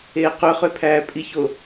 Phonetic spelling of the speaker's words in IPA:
eː q ø χ ø pʰ æː pʼ i ç o

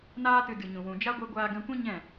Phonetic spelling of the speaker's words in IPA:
n aː˧ t ɨ˨ d ɨ˨ ɲ ũ˨ w ũ˨ d͡ʒ a˦ ɡʷ e˧ ɡʷ aː˧ ɡ ɛ̃˧ kʷ ĩ˦ ɲ ɛ̃˦˨

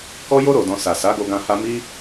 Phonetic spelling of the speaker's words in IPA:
k ɔ˧ j o˧ ɾ o˨ d ɔ̃˨ s a˨ s a˨˦ ɡ o˧ ɡ ã˧ h a˧ m i˧

